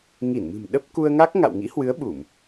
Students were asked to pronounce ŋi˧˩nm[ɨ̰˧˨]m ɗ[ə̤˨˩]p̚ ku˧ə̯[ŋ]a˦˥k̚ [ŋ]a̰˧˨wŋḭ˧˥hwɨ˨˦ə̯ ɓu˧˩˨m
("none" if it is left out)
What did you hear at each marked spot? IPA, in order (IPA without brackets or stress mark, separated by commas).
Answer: ɨ̤˨˩, ə˦˥, ŋ, ŋ